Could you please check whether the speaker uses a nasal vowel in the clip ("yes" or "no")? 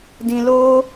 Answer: yes